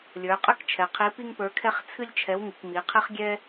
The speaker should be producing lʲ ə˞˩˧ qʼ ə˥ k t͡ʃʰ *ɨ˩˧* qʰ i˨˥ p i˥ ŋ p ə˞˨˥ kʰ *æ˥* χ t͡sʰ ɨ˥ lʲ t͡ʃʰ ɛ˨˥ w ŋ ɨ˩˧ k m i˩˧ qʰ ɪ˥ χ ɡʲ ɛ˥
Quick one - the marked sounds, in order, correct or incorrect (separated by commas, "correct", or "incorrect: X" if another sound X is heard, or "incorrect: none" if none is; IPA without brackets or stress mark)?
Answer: incorrect: ɛ˩˧, incorrect: ɛ˥